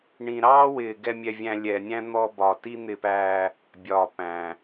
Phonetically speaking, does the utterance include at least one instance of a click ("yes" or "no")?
no